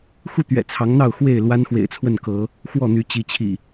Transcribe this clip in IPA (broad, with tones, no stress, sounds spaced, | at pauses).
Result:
x u˥˨ t̪ ɥ ɛ̰˨˩ t͡sʰ ɑ˨˦ ŋ n̪ ɑ˥˨ ʊ̯ x w e˥˨ ɪ̯ l w a˦ n x w ḛ˨˩ ɪ̯ t͡sʰ w ə˥˨ n k ɤ˨˦ | x w ɔ˥˨ n̪ y˨˦ t͡ɕ i˨˦ t͡ɕʰ ḭ˨˩